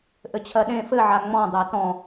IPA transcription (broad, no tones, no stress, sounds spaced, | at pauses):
ʔ ɘ t͡ɕʰ ɜ ɗ ẽ f ɘ ʕ a ŋ͡m ɔ̃ dˤ ɜ t ɔ̃